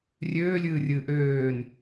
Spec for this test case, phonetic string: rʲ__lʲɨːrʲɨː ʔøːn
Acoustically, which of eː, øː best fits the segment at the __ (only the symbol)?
øː